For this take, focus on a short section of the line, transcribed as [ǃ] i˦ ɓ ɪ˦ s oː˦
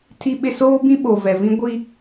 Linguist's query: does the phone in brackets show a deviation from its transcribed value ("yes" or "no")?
yes